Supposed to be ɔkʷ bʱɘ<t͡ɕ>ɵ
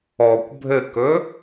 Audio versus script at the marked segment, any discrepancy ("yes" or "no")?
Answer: yes